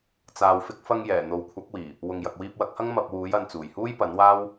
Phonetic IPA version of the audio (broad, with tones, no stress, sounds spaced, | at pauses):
t͡s aː˨ w f ɪ˧ k̚ f ɐ˧ ŋ j ɛː˨˩ n̪ o˨ w kʷʰ ɐ˨˥ k̚ w iː˨˩ | w ʊ˨ ŋ j ɐ˨ k̚ w iː˧ p̚ w ɐ˨˥ k̚ h ɐ˥ ŋ m ɐ˧ p̚ w uː˨˥ j ɐ˨˧ n t͡s uː˨˩ j h uː˥ j p ɐ˨˥ n w aː˥ w